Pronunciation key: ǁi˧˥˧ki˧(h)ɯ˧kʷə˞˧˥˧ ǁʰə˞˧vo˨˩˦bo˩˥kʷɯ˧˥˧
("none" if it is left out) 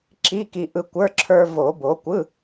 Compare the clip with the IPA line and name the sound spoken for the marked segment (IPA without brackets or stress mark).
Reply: ʔ